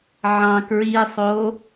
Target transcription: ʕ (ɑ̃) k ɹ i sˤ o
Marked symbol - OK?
yes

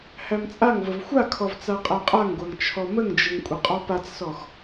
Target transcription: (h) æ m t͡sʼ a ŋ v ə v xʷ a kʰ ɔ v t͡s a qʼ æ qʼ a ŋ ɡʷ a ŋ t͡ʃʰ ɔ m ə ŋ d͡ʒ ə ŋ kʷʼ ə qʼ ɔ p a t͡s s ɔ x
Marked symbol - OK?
yes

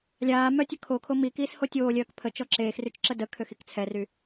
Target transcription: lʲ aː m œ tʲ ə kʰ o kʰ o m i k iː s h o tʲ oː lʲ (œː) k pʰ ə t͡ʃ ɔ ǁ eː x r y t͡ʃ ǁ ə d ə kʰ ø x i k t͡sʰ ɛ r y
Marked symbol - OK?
yes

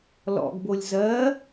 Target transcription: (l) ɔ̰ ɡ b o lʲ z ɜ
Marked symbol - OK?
yes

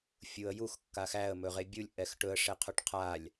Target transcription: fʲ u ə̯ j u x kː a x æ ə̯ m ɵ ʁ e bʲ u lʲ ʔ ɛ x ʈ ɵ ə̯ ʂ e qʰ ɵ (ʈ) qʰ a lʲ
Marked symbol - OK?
yes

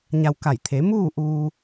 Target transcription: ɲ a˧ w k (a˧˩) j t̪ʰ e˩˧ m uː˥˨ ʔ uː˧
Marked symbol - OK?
yes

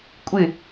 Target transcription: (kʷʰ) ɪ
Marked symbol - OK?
no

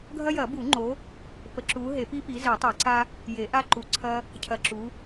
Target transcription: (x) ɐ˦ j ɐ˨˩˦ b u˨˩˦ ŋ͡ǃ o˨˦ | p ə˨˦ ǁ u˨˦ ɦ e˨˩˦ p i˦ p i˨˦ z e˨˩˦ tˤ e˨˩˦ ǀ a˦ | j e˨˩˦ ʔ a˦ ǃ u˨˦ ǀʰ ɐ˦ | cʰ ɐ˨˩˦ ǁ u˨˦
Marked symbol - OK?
no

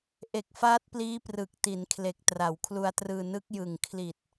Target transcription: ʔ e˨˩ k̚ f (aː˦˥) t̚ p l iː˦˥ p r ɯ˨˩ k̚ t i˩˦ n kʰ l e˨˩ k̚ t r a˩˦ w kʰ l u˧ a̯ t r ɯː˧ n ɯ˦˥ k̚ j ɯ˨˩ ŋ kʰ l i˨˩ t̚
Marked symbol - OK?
yes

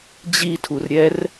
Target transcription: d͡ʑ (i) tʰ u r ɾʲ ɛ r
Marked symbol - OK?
yes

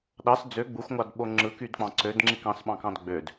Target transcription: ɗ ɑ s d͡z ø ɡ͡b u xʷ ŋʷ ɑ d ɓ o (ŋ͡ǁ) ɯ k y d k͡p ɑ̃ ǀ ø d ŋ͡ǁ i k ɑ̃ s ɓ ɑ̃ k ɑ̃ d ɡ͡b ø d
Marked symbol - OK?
yes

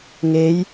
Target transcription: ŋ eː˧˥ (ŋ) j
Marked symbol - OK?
no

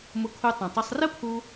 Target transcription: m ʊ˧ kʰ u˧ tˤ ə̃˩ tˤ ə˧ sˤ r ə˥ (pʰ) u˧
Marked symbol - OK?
yes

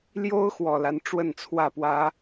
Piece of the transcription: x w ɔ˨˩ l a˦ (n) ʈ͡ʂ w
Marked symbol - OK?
yes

